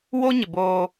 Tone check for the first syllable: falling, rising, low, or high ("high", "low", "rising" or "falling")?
high